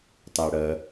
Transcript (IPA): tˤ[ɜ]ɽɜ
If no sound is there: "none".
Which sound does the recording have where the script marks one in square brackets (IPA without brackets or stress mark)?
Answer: æ